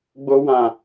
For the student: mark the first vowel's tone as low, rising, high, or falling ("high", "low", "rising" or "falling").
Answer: high